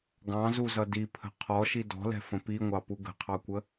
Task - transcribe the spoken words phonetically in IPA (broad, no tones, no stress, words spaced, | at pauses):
ɡɑ̃zuzʌ dipʰə̤ qʰɔʃi dɔ̤lɛ̤fə̃ piŋʷɑpu ɡə̤qʰɑkʷə